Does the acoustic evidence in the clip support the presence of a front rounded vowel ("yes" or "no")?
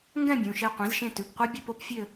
yes